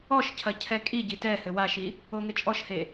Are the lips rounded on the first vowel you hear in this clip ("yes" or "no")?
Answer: yes